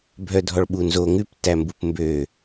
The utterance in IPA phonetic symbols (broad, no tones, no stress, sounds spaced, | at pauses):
bʱ œ dʱ ɔ ɭ ɓ u n z o ŋ ʉ p t æ m b u p m b ø